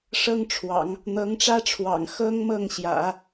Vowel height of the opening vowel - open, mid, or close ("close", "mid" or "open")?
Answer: mid